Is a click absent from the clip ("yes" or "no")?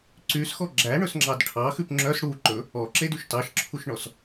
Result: no